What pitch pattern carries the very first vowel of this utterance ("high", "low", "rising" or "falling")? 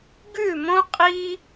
falling